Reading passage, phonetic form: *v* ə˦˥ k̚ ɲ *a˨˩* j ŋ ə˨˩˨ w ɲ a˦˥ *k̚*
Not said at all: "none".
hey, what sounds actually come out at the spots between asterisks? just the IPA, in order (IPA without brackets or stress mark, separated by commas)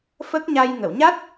f, a˧, t̚